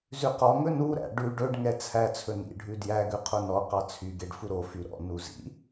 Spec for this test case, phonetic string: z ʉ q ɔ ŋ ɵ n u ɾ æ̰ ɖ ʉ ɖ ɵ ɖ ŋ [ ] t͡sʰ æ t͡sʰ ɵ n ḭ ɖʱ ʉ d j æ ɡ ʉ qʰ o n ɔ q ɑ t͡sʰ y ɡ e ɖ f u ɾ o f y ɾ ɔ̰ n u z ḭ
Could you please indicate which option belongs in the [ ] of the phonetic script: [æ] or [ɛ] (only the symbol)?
ɛ